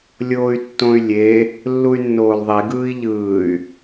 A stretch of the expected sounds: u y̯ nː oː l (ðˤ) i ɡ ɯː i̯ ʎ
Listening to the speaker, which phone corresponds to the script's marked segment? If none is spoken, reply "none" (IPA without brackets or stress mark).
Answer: ðˤ